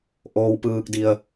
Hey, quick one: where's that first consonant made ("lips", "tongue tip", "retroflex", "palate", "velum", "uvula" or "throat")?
throat